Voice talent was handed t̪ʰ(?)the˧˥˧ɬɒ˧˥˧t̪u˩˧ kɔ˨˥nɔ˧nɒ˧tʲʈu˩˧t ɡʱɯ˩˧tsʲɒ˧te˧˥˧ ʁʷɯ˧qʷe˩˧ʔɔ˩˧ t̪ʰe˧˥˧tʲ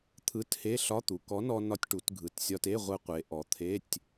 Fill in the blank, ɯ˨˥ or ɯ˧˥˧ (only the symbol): ɯ˧˥˧